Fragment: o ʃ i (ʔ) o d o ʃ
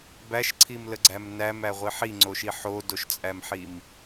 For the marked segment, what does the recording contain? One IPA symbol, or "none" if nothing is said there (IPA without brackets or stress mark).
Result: ħ